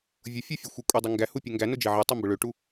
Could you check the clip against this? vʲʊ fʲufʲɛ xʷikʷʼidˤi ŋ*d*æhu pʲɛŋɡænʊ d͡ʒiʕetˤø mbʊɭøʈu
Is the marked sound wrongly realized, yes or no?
yes